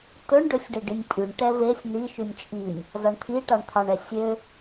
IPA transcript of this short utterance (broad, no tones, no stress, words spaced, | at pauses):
tɵɳ ɖɵsʲɖe ɖinʲpʼyɳ ʈɛvesʲ ni ʃʉnʲt͡ʃʼinʲ | zɑɳt̪ʰiʈɑɳ t̪ʰɑɳɛ sʲø